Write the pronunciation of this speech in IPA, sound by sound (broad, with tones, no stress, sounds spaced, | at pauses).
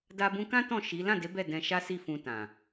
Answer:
d a˧ b ũ˧ k ã˦ t ɔ̃˦˨ ʃ i˨˦ l ã˦˨ d e˨˦ b ɛ˦˨ d ɛ̃˧ ʃ a˦ s i˦˨ f ũ˧ t ã˨